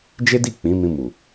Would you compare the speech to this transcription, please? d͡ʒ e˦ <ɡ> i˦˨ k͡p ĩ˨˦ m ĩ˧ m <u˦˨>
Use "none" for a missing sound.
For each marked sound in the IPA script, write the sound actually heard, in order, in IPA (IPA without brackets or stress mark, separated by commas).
d, u˨